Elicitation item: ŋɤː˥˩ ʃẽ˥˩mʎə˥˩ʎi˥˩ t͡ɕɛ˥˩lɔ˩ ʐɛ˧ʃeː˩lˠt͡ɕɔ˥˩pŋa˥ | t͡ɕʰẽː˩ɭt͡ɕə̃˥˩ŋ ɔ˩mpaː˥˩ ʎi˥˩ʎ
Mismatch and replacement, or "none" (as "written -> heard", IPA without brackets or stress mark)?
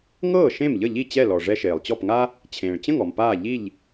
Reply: none